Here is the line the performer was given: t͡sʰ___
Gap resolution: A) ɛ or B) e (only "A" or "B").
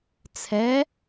A